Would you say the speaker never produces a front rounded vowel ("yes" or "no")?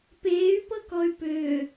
no